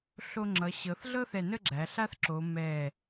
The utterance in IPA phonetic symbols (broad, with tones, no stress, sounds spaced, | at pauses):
ɬ o˧ ŋ͡ǁ ʌ˩˧ ɕ ɤ˩˧ θ ɮ ɤ˥ θ ɛ˧˩ n ə˥˧ ɡ͡ǁ æ˩˧ ɬ a˥ θ ǁ o˩˧ m ɛ˧˩